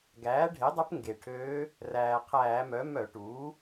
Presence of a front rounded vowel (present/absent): present